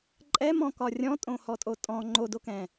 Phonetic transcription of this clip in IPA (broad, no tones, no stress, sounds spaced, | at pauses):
ǃʼ ɛ m ɔ̃ k ɒ rʲ ɔ̃ tʼ õ h ɔ tʼ o tʼ ɔ̃ ŋ͡ǃ o d o k ɛ̃